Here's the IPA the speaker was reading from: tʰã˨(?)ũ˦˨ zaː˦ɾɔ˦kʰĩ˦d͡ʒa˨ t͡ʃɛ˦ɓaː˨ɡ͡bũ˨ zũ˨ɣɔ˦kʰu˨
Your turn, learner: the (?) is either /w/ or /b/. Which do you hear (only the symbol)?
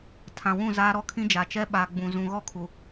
w